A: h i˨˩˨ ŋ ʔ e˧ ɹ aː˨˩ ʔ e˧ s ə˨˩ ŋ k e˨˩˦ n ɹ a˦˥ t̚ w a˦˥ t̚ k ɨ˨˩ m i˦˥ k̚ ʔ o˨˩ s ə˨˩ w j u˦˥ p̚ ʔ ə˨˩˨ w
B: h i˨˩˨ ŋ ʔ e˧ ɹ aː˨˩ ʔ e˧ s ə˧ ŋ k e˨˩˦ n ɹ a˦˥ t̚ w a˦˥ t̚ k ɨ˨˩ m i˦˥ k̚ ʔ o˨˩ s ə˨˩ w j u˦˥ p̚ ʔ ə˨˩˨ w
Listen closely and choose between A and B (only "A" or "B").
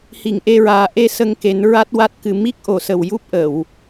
B